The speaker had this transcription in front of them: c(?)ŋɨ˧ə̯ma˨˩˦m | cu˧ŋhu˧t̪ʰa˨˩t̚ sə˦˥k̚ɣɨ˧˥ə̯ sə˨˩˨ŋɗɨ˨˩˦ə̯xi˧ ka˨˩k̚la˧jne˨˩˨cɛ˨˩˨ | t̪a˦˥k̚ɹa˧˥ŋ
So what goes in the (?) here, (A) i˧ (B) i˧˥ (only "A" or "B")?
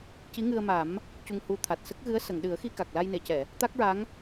B